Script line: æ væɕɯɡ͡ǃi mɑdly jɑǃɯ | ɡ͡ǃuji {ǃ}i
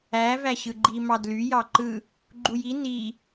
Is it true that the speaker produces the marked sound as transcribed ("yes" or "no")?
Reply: no